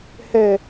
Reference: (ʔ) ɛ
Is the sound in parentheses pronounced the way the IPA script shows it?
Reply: no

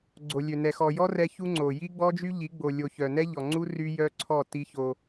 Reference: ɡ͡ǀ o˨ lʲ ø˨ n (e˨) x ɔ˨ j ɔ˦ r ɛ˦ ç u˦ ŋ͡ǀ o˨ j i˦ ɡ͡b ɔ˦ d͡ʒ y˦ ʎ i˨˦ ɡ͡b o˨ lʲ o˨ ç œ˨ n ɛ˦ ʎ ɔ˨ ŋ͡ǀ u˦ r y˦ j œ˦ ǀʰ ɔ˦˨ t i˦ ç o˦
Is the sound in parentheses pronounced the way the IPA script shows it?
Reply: no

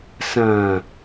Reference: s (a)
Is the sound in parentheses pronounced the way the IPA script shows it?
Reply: no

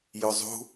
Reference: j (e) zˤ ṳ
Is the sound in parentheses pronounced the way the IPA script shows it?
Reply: no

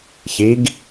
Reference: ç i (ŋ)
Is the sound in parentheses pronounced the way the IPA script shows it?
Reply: no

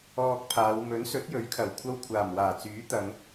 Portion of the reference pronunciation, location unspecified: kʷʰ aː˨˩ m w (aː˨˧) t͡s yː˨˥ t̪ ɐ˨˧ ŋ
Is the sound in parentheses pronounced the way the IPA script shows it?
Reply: no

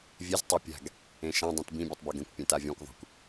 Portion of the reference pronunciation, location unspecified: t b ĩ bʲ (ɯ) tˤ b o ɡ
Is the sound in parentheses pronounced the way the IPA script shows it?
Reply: yes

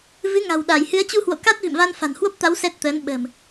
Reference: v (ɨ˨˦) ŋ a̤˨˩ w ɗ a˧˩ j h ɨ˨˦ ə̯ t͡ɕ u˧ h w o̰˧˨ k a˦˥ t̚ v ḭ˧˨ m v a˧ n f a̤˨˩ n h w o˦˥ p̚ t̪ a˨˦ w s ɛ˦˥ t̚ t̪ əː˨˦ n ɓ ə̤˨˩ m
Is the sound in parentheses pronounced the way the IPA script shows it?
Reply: yes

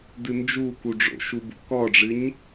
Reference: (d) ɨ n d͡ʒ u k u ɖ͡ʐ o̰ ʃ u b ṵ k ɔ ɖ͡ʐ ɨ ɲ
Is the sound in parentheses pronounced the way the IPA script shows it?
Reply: yes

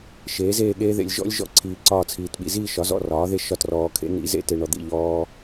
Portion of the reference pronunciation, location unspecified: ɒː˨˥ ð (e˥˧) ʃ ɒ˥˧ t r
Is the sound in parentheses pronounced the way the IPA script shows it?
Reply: yes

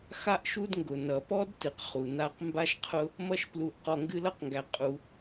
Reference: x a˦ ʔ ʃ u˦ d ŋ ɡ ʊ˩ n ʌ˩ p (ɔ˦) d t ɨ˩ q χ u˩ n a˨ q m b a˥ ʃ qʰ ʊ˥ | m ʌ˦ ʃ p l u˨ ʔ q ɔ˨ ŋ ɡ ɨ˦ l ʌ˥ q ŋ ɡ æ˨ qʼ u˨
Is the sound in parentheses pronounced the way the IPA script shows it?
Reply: yes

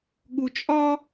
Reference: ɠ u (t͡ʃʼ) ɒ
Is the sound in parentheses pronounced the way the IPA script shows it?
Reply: yes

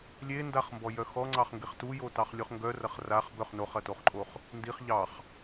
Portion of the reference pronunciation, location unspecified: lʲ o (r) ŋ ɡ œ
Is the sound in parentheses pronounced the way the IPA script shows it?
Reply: no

